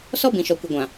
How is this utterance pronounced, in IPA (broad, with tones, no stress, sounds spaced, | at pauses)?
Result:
s ɔ˦ b ĩ˨ ʃ ɔ˨ kʷ ɪ˨ ɡʷ ã˨